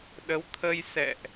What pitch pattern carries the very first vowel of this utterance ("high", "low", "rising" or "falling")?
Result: rising